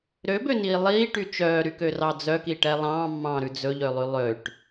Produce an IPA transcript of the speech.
ɾ ø b ø n iː lˠ iː ʈ y t͡ʃ œː ɾ y k ø r ɑ d͡z œ k i ʈ ɛ lˠ ɑ̃ː mː ɑ̃ː ɾ ʉ d͡z ɵ ʎ ø lˠ y lˠ ø ʈ

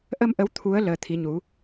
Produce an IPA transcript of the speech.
ʔ ə˧ m ʔ ə˨˦ w t̪ʰ u˨˦ ə̯ l əː˨˦ t̪ʰ i˨˦ ɲ u˨˦

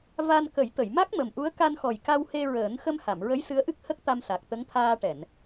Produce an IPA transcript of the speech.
v a˧ n k ə˨˩˦ j t̪ ə˨˩˨ j m a˦˥ k̚ m ə˨˩ m ʔ u˧˥ ə̯ k a˧ n x ɔ˨˩ j k a˧ w h e˧ ɹ əː˨˩˦ n x ə˧ m h a˨˩˨ m ɹ ə˧˥ j s ɨ˧˥ ə̯ ʔ ɨ˦˥ k̚ h ə˦˥ k̚ t̪ a˧ m s a˨˩ k̚ t̪ ə˧˥ ŋ t̪ʰ aː˧ ʈ ɛ˨˩˨ n

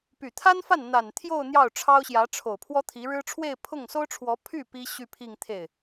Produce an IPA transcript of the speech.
p y˨˩ t̪ʰ a˥ n f a˥˩ n n̪ a˨˩ n t̪ʰ j o˥˧ ʊ̯ n̪ j ɑ˥˩ ʊ̯ ʈ͡ʂʰ ɑ˥ ʊ̯ ɕ j ä˧˥ ʈ͡ʂʰ o˨˩ ʊ̯ pʰ w ɔ˥ t̪ʰ i˧˥ ɻ ɻ̩˥ ʈ͡ʂʰ w e˥˧ ɪ̯ pʰ ʊ˥˩ ŋ s o˥ ʊ̯ ʈ͡ʂʰ w ɔ˧˥ pʰ y˥˩ p i˥ ɕ y˥˧ pʰ i˥˧ ŋ t̪ʰ e˥˩ ɪ̯

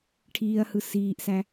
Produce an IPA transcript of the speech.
ʈʰ iː ɐ̯ h ɯ s iː ʔ s æ

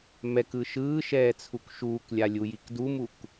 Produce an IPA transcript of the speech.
m ɛ k ɯ ʃ ɯː ʃ ɛː t͡sʰ u k ʃ uː k lʲ a lʲ u j i k d u m u k

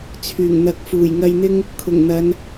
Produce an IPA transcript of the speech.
t͡sʰ yː˨˩ ŋ n̪ ɐ˨ k̚ f uː˨˩ j ŋ ɐ˧ j n̪ ɪ˥ ŋ | kʰ ʊ˨˩ ŋ n̪ ɐ˨˧ n

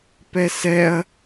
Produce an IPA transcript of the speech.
p ɛ s ɛ ɐ̯

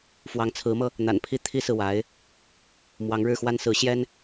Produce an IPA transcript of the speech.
f w ɑ˧˥ ŋ t͡sʰ ɹ̩˧˥ m ɤ˧ | n̪ a̰˨˩ n pʰ i˥˩ t̪ʰ i˥ s ɹ̩˨ w a˧˥ ɪ̯ | m w ɑ˧˥ ŋ ɻ ɻ̩˥˩ x w a˥ n s ɹ̩˧˥ ɕ j ɛ˥ n

